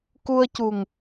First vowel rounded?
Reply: yes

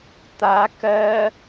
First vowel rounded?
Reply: no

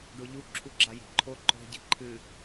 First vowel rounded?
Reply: yes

